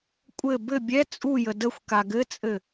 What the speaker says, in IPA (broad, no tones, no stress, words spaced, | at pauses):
kʷʼɘ bɘ bʲɛ t͡sʼujə dəxʷka ɡɘt͡sʼɘ